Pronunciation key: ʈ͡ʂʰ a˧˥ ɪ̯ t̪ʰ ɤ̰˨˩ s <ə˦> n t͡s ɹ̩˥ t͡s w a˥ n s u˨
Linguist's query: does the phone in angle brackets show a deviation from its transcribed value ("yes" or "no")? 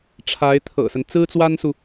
no